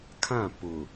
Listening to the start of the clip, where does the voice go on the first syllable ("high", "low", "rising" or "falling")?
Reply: falling